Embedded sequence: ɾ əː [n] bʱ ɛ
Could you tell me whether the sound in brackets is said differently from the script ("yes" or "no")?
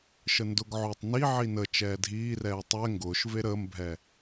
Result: yes